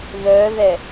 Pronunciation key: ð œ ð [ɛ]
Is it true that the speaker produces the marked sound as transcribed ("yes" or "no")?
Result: yes